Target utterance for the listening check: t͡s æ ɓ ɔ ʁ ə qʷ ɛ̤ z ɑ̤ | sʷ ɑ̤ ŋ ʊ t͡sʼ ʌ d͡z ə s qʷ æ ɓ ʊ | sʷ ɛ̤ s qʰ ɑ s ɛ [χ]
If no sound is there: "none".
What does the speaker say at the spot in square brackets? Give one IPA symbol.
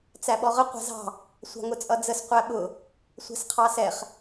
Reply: χ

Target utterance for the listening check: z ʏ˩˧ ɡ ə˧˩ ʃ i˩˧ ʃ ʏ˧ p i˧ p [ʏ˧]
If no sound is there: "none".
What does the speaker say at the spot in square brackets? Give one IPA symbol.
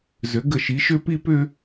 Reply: ʏ˧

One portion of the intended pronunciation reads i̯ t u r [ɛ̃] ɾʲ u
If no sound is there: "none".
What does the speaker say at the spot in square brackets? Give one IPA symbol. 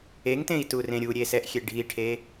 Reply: ẽ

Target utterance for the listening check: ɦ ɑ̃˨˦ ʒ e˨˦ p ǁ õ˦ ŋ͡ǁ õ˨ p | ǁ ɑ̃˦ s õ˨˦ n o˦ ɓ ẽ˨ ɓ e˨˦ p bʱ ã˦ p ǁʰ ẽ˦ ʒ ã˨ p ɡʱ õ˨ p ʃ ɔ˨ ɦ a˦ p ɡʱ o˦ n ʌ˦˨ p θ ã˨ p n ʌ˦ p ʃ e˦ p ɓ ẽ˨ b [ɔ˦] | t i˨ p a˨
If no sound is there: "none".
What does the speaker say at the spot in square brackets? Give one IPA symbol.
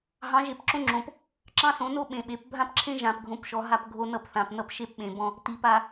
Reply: ɔ̃˦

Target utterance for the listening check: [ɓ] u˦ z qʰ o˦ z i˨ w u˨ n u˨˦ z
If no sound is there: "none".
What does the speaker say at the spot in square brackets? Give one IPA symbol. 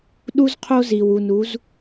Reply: ɗ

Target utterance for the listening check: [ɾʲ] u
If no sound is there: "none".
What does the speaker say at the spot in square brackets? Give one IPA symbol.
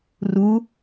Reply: r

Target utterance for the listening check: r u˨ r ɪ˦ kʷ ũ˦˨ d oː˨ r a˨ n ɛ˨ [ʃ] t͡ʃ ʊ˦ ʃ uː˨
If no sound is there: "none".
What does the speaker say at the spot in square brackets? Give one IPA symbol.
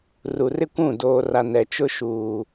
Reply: none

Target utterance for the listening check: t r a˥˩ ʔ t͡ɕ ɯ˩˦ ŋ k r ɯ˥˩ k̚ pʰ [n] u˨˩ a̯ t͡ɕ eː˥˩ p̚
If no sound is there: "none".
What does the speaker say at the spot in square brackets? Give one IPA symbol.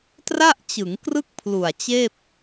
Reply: l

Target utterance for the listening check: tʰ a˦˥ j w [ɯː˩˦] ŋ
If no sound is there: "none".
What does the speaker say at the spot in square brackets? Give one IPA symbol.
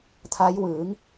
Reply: ɯː˩˦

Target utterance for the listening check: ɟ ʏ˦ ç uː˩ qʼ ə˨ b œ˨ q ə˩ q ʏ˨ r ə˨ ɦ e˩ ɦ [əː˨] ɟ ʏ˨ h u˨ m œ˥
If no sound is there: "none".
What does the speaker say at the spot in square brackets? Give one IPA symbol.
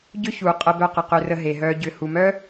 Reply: œː˨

